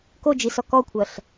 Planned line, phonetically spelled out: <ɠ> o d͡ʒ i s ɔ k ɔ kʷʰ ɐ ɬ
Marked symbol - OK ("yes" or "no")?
no